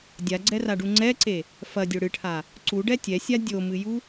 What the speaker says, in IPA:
dʲaɡ͡ǀɛraɖu ŋ͡ǀɛǀe | fɐdʲo ɽɨʈʰa | ǀuɖɛ tʲɛsʲa dʲomɨju

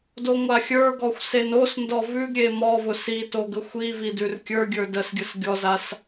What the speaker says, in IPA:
doŋʷaxʲə˞ɡɔxʷ senosndɔ vʉɡ ɾʲemɔvʊ sito ɡəxʷivi dʉrkʲə˞ɡʲə˞ dəsɡʲəs ɡʲɔzas

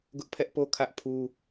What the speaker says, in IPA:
ɡʊ˦ʔpʰɛ˦ʔpo˦ kʰä˦ʔpʰu˦

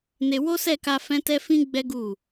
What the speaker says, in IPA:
ne˧ wo˦sɛ˦˨ka˧ fɛ̃˦ tɛ˦fĩ˦ɡ͡bɛ˦ɡu˦˨

